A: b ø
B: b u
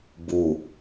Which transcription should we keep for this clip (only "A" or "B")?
B